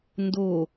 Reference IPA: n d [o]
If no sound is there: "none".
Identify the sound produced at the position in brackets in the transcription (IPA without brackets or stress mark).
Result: o